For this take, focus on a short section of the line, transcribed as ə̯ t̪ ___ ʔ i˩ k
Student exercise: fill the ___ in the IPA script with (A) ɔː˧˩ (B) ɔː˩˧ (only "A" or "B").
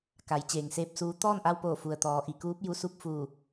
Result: B